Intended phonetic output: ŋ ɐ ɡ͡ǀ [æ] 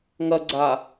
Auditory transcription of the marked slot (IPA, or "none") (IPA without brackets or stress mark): a